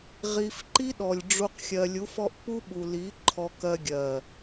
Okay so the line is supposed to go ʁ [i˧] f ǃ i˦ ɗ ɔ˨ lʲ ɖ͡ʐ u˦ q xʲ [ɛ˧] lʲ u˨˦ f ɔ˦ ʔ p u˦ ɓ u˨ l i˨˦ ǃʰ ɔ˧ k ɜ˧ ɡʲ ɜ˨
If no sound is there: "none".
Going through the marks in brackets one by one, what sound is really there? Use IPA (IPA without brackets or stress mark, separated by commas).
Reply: i˧, ɜ˧